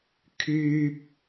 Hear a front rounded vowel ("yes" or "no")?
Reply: yes